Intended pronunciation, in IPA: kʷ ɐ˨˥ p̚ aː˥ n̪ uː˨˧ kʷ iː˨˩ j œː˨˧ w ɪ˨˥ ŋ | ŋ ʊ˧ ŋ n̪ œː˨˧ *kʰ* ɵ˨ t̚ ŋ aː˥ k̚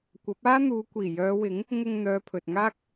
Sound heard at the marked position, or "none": pʰ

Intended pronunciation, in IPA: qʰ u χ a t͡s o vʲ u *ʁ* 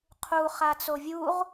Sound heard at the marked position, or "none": ʁ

